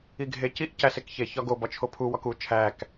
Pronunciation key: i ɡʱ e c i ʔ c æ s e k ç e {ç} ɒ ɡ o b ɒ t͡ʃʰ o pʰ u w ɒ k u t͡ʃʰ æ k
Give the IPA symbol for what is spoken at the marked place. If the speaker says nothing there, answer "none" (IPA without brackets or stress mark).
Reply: ç